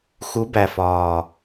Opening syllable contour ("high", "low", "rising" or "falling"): rising